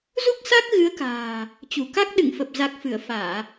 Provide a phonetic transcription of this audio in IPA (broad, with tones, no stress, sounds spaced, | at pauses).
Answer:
z u˦˥ k̚ s a˦˥ k̚ ɣ ɨ˨˦ ə̯ k a̤ː˨˩ | t͡ɕ u˧˩ k a˦˥ k̚ ɗ ɨ̰˧˨ ŋ f ə˨˩ p̚ z a˨˩ k̚ f ɨ˧˩ ə̯ f aː˧˩˨